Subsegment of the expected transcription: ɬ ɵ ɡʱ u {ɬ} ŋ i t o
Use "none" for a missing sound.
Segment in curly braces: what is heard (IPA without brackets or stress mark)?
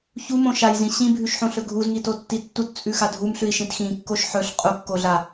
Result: z